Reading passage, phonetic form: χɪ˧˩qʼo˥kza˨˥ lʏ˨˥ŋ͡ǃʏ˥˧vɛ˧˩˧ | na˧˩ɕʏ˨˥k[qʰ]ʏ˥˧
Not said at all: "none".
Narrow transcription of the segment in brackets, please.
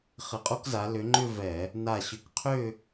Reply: qʰ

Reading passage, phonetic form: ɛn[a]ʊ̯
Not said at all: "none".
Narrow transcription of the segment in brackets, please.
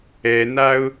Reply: a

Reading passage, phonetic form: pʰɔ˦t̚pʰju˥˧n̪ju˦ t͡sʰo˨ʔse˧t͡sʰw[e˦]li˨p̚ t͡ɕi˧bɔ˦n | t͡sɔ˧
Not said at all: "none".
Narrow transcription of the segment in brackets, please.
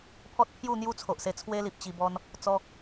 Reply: e˦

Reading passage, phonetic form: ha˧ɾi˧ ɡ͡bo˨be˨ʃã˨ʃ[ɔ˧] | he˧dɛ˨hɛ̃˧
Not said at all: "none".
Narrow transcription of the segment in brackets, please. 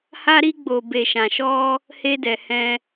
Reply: ɔ˧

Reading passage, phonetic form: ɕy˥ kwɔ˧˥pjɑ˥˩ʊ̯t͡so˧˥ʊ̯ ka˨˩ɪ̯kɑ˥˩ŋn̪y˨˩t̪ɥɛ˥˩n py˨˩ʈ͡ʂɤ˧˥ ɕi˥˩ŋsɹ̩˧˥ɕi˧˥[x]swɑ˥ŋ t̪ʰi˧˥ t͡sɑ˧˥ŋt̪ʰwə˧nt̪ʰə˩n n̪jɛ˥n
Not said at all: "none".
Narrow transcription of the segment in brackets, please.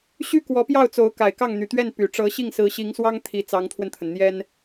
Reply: ŋ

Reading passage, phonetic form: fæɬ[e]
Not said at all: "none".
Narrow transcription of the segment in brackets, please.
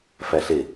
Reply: e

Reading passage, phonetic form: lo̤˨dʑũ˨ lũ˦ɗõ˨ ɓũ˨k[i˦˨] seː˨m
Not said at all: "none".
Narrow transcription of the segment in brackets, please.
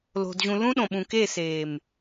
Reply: e˦˨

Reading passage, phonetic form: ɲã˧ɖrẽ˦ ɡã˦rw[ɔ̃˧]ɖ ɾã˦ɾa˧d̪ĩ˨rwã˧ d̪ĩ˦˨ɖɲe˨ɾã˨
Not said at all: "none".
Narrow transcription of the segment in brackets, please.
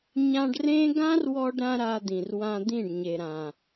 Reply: ɔ˧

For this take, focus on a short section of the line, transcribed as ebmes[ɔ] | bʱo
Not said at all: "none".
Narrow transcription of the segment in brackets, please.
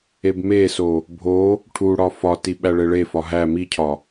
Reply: o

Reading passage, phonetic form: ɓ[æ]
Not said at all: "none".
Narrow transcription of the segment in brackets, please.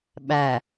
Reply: æ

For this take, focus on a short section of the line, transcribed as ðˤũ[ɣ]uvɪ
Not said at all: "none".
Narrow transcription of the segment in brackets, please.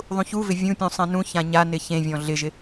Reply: ç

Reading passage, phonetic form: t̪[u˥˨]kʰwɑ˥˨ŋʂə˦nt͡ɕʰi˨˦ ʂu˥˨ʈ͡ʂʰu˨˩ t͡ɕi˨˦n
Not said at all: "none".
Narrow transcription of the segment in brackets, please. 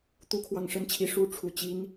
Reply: u˥˨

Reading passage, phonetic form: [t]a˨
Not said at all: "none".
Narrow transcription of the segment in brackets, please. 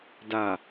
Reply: d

